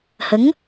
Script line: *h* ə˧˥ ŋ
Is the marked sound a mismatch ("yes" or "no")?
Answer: no